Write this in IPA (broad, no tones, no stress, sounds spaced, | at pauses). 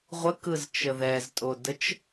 ʁʷ ə k ɯ z t͡ʃ ə ð ɛ z tʼ o d ə t͡ʃ